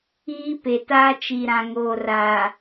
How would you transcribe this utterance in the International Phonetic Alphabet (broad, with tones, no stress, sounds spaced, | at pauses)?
iː˦ p e˨ t aː˦ t͡ʃ i˨ ɾ ã˨ ŋ oː˨ r a˨